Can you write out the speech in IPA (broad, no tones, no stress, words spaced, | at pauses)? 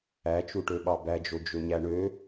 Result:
æt͡ʃuʈøɓɑ bæd͡ʒo d͡ʒøɲæɳø